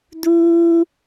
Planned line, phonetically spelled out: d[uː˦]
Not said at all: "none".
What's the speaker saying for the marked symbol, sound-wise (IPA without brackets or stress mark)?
uː˦